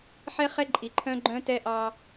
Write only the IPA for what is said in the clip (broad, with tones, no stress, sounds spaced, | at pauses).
ħ ɛ˦ χ ɛ˦ ǃʼ i˨ ǃʰ œ̃˦ ɡ͡ǃ œ̃˦ t ɛ˦ ʔ ɑ˦